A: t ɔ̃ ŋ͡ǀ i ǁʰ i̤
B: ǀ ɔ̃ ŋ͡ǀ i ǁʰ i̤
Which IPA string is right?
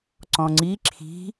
B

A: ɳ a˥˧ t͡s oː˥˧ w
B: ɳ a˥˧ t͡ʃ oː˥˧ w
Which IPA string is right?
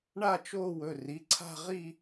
B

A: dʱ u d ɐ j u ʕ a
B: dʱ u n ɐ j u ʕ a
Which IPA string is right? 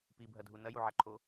B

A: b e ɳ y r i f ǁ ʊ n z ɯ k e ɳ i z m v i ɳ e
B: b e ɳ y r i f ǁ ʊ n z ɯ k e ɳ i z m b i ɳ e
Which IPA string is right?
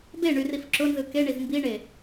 B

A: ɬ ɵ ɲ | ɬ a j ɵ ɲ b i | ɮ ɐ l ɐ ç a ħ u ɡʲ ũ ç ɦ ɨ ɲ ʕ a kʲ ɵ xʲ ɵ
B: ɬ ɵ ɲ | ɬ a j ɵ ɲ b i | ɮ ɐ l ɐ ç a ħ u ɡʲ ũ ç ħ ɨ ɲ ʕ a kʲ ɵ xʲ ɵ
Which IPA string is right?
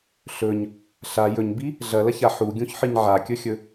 B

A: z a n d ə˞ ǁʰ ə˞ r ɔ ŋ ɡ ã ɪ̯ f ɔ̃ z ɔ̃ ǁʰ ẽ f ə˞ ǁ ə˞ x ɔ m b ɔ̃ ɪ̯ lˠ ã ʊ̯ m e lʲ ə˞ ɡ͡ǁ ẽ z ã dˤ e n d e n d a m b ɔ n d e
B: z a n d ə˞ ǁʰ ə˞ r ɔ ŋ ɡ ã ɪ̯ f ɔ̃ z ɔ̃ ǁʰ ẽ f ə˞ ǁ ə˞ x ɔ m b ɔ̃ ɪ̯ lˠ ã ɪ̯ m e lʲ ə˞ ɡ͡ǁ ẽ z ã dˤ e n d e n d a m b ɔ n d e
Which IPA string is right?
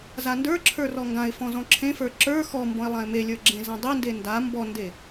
B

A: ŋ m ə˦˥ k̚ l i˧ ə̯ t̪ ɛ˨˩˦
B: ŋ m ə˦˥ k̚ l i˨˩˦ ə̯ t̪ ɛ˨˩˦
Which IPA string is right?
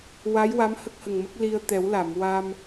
A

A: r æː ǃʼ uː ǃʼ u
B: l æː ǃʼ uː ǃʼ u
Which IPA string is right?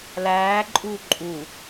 B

